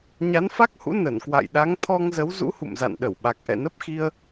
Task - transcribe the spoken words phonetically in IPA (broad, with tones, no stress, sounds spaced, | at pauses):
ɲ a˨˦ n f a˦˥ k̚ h ṵ˧˥ n ə˧˩ n k w a̰˧˨ j ɗ a˨˦ ŋ t̪ʰ ɔ˧ ŋ z ə˨˦ w z ṵ˧˥ h ṵ˧˨ m z a̰˧˨ n ɗ ə˧˩ w ɓ a˨˩ k̚ ʔ ɛ̰˧˨ n ə˦˥ p̚ x i˧ ə̯